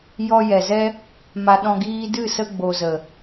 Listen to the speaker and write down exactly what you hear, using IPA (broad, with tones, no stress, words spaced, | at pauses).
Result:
jɔ˧jɛ˨zɛ˦ | ma˧ɗɔ̃˧ ɡiː˦ dɨ˦˨sə˧ ɡ͡bo˨zə˨